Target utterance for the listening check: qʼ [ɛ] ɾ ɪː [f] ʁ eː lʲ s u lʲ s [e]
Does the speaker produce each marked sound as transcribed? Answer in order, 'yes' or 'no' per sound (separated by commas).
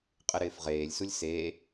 no, yes, yes